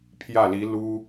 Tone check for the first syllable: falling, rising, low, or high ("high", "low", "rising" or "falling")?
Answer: falling